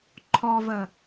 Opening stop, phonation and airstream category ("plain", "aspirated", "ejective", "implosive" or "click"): click